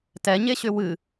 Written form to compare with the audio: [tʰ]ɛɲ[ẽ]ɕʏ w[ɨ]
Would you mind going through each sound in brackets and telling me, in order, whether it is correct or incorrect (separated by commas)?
incorrect, incorrect, correct